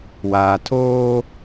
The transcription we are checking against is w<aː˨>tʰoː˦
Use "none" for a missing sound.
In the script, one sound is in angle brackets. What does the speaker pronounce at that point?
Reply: aː˨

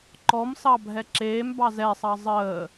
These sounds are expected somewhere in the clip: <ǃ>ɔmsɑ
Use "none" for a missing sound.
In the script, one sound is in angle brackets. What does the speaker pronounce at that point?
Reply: ǃ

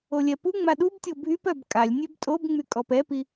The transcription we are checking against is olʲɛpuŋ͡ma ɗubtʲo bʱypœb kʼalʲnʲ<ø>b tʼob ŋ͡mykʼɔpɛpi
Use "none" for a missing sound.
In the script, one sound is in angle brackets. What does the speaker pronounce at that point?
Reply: ø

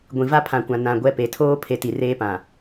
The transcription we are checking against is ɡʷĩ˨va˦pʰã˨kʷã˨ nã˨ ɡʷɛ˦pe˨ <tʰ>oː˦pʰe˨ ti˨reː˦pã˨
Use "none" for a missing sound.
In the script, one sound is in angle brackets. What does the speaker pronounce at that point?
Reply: tʰ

